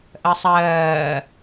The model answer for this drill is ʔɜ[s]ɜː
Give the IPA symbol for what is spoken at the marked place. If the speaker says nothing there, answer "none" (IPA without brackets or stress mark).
sˤ